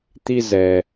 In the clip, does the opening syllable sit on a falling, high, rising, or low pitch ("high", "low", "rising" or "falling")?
high